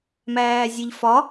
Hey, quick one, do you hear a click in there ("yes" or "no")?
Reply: no